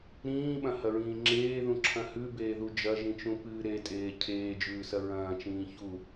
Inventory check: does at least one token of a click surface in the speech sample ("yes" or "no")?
yes